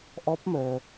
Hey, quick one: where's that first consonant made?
throat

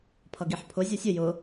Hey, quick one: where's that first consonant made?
lips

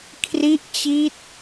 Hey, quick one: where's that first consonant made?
velum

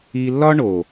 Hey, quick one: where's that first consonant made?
tongue tip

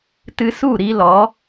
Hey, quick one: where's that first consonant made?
tongue tip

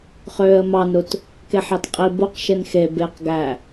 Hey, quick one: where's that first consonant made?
uvula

